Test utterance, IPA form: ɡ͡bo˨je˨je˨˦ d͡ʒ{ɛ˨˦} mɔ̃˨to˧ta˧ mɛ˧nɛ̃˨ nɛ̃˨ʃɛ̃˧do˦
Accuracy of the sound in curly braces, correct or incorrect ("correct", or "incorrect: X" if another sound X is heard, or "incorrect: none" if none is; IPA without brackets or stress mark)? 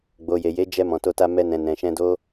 incorrect: ɛ˧